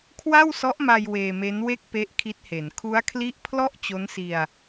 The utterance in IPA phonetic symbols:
kʰ w a˥˩ w s ɔ˦˥ ʔ m a˧ j w eː˧ m e˦˥ n w e˥˩ k̚ p e˦˥ ʔ kʰ i˦˥ t̚ h e˩˦ n kʰ u˦˥ a̯ kʰ l i˦˥ ʔ pʰ l ɔ˥˩ ʔ t͡ɕ o˦˥ n s i˧ a̯

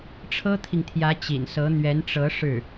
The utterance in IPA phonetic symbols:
ʈ͡ʂʰ ɤ˥ t̪ʰ i˨ ŋ t̪ʰ j ä˧˥ t͡ɕ ḭ˨˩ n s ɤ˧˥ n̪ ɥ ɛ˧˥ n ʈ͡ʂ ɤ˧˥ ʂ ɻ̩˥˩

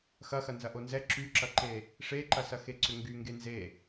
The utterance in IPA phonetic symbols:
x ɐ x ɐ n z ɐ ʔ o n z ɛ ǁ y ǁ ɐ ǃ e | ʂ e ǃ ɐ s ɐ x e ǀ ʏ ŋ ɡ y ŋ ɡ e n z e

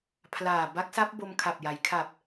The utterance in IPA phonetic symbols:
pʰ l aː˨˩ b a˦˥ k̚ s a˦˥ p̚ b o˧ m kʰ a˨˩ p̚ j a˩˦ j kʰ a˨˩ p̚

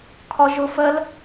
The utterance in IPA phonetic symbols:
kʰ ɒ ʒ ʊ f ɜ l

